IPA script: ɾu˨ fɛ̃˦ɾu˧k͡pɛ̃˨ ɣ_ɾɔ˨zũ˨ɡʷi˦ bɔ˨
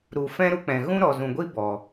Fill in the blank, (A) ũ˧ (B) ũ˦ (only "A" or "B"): B